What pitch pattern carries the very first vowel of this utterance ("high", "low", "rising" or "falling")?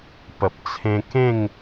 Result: low